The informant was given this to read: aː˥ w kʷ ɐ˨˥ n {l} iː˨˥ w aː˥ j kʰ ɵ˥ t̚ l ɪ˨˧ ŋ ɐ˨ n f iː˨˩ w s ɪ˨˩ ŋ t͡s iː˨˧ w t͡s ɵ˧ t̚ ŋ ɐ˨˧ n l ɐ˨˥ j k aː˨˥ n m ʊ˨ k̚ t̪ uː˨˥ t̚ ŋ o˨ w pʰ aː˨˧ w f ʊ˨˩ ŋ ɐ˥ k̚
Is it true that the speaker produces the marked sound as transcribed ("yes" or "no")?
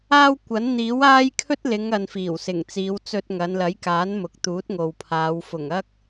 no